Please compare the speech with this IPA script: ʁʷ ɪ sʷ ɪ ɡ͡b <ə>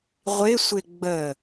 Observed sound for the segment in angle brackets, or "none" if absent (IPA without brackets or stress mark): ə